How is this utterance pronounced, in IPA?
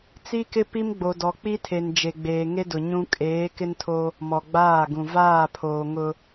t͡s i˦ k ɪ˦ p i˦ m ɡ͡b o˨ d ɔ˨ k͡p i˦ tʰ e˨ n d͡ʒ e˨ ɡ͡b eː˨ ŋ e˦ d ʊ˨ ɲ ũ˦ kʼ eː˨˦ k ɪ˦ n tʰ o˦ | m ɔ˨ ɡ͡b aː˦˨ ɡ ũ˨ v aː˦˨ pʰ oː˨ ŋ ʊ˦

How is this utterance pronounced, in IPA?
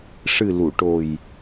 ʂ ɨ˨˩ l u˨˩˨ ʈ o˨˩ j

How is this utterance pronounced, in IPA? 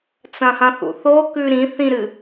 t͡s ɐ̃ h ɐ̃ θ ṵ θ o k ʉ ɾ ĩ θ ĩ ɾ ɨ

